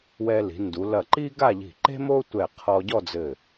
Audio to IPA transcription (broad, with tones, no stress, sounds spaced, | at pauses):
w ɛ˧ l i̤˩˧ n d u˩˧ l ɐ˧˩ ǃ i˥ ɡ a˥˧ ʎ i̤˧˩ ǃ e̤˥ m o˥ tʷ ɛ˧˩ qʰ ɔ˧ ɟ ɔ˥˧ d͡z ɘ˧˩